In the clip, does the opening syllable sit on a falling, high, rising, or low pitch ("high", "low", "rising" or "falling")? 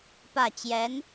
falling